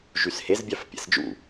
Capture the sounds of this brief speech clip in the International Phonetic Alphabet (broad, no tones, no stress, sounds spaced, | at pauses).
ʒ y s h e z bʲ ɑ f pʲ æ̰ s d͡ʒ ṵ